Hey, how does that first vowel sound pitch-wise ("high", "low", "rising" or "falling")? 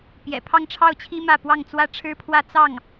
low